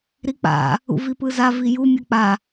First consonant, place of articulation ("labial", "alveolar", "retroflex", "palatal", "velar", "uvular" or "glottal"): alveolar